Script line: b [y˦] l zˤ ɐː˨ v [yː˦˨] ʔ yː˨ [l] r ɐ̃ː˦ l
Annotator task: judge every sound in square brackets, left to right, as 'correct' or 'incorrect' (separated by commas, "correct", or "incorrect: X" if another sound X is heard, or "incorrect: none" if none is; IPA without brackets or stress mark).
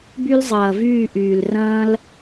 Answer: correct, correct, correct